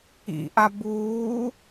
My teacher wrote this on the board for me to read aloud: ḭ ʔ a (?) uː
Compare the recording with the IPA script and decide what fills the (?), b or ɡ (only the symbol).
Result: b